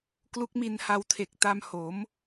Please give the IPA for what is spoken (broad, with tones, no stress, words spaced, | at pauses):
klu˦˥k̚mi˧nha˧wtʰe˨˩k̚ ta˧mho˩˦m